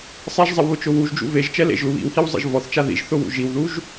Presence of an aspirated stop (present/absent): absent